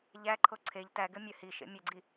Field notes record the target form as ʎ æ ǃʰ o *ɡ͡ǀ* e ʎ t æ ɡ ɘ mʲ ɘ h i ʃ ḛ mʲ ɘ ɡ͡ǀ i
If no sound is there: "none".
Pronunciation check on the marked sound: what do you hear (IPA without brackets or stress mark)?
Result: ǀʰ